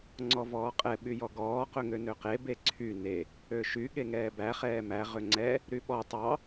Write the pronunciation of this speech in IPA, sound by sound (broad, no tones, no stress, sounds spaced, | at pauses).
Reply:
ŋ͡ǀ ɔ v ɔː qʼ ɛ ɓ y j ɔ ɡ ɔː q ɵ ŋ ø n ø q e b e ǀʰ y n e | ø ʃ y ɠ e ŋ ɛː b æ χ ɛː m æ ʁ ø ŋ͡ǀ ɛ | ɾ y ɓ ɔ tˤ ɑ